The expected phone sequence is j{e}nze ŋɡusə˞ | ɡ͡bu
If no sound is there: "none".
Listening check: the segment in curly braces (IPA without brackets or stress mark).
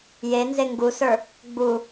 e